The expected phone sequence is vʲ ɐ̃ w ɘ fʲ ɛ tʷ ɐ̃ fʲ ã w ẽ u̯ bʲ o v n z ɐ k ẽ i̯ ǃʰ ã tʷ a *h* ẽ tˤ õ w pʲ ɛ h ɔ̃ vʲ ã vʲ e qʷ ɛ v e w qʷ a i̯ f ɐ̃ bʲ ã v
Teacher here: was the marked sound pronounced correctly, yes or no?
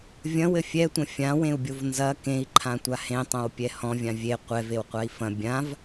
yes